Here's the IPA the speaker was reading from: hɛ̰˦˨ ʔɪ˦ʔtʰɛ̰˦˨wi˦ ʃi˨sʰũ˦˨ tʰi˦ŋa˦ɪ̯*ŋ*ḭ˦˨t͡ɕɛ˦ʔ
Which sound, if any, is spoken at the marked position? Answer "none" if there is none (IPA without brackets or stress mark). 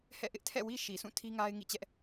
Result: ŋ